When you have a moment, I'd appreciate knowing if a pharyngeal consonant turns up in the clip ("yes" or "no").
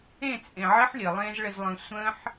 yes